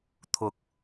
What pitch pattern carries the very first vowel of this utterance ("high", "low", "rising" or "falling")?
rising